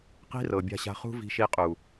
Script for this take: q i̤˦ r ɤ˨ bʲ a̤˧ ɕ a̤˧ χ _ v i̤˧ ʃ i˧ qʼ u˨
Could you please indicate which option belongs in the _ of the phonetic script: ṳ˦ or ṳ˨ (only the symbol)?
ṳ˦